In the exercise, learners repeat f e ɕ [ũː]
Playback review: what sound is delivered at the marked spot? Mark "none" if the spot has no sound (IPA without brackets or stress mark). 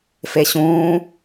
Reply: ũː